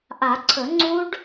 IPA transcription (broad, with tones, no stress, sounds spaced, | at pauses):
ʔ a˨˩˦ ǀʰ ɵ˨˩˦ ŋ͡ǀ u˦˥ ɖ